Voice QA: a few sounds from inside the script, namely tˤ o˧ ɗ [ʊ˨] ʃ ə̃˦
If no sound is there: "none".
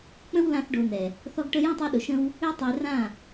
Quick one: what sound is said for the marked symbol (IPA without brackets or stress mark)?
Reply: ʊ˨